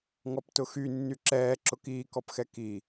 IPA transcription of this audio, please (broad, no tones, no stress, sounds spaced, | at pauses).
ŋ ɔ p t ʊ x y nː y ǁ ɛː ǁ ʊ k iː k ɔ p x ɛ k i